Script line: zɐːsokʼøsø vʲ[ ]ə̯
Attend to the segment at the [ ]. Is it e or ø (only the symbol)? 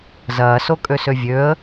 ø